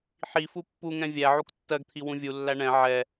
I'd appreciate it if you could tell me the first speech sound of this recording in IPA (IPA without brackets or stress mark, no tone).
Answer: ħ